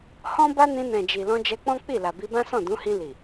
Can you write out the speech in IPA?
h ɔ̃˦ b a˦ n ĩ˧ n ɛ̃˨ d͡ʒ i˨ l ɔ̃˧ d͡ʒ ɛ˧ k͡p ɔ̃˦ k͡p i˦˨ l a˨ b i˧ b ã˦ s ɔ̃˦˨ d ũ˨˦ h ĩ˧ l i˨

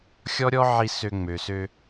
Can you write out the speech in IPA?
xʲ ɔ˦ ɾʲ ɔ˦ ʕ i˧ s ø˧ ŋ͡m ø˨ s ø˧

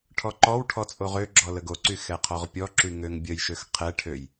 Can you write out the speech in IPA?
ʈʰ ɔ ǃ ɔ w ʈʰ ɔ t͡sʼ o ʁ ø ɡ͡ǁ ɔ l ə ɡ o ǀ y x ɛ qʰ ɔ ʁ pʲ ɔ ǁ y ŋ ø ŋ bʲ ə j ʃ ø x qʰ ɛ ʈʰ ø j

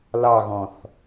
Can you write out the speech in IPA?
l ɑ ɣ ɔ̃ θ

